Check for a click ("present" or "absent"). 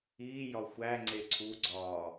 present